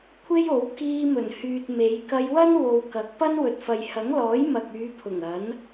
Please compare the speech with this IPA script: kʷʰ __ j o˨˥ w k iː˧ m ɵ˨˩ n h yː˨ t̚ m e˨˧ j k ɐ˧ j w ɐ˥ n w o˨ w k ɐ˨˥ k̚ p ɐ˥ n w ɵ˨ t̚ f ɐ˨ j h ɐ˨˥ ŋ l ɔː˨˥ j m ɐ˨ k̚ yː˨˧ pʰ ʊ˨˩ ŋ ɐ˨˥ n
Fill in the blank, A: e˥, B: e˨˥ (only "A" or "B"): A